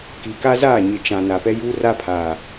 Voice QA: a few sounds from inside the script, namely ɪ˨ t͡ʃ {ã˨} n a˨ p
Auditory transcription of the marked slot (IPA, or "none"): ã˨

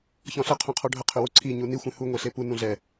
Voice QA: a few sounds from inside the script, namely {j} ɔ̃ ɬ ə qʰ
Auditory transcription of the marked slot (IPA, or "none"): ç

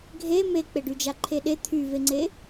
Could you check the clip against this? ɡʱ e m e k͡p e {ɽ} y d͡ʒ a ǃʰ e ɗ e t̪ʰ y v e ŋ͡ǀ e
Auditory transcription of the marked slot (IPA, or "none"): ɖ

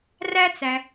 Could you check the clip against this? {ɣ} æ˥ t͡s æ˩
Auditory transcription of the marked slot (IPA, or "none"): r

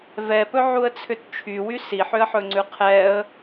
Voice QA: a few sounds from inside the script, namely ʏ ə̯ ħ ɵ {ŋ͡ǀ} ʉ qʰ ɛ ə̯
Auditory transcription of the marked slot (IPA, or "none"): ŋ͡ǀ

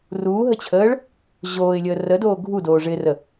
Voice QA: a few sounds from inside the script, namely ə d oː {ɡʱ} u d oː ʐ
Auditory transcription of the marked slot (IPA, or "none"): ɡʱ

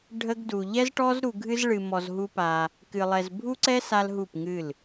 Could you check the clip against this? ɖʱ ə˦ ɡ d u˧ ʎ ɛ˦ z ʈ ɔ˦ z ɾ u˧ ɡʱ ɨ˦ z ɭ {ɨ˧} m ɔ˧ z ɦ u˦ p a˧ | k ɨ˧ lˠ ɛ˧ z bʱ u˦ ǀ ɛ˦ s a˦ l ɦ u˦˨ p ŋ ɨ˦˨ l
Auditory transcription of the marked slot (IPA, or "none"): ɨ˧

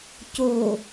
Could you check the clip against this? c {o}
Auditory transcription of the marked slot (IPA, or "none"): o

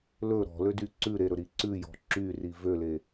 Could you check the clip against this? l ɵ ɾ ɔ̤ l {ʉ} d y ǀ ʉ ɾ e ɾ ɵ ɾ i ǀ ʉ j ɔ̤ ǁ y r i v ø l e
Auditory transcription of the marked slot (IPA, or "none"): ø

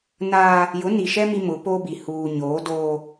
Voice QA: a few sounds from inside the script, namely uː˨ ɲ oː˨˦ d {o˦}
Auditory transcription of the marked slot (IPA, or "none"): oː˦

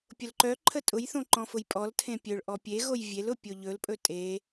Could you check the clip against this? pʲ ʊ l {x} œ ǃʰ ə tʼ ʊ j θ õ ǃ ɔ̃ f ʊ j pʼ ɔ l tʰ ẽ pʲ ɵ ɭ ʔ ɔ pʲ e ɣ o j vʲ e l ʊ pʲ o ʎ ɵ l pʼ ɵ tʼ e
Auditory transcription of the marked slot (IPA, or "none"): ǃ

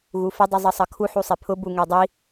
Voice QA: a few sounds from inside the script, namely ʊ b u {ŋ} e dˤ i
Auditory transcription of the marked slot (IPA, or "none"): ŋ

